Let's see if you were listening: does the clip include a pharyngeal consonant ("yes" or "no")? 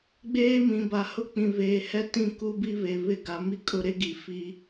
no